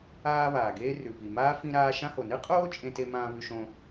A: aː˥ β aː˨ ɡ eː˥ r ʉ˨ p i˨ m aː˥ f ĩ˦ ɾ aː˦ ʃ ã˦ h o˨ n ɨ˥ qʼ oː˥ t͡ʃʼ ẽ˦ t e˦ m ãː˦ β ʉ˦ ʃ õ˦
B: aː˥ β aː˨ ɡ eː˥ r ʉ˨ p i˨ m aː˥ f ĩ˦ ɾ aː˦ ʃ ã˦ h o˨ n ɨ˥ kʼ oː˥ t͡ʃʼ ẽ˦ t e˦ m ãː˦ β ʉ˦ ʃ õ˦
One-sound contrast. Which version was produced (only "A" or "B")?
A